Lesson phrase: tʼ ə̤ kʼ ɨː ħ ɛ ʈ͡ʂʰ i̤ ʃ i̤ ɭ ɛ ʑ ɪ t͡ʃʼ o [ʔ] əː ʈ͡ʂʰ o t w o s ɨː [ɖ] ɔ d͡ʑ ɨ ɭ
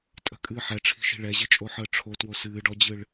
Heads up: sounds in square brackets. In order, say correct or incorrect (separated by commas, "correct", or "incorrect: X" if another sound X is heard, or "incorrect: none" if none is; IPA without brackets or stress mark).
incorrect: ħ, correct